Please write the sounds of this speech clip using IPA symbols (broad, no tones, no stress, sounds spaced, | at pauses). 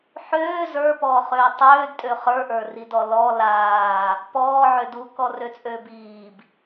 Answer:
ħ øː z ə˞ p ɔː χ øː tˤ øː d tʼ ø χ ə˞ ʔ ə˞ r i d ɔ l ɔ l aː | p ɔː ʕ ø d u k ɔ r ø t͡sʼ øː b iː b